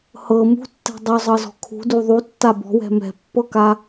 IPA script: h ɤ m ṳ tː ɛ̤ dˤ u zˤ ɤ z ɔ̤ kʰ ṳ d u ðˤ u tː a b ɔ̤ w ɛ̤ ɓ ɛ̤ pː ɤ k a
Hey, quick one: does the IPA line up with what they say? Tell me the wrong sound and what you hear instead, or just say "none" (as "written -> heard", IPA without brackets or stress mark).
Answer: ɓ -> m